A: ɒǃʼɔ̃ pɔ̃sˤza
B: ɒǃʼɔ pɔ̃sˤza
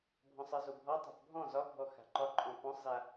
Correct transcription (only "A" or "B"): A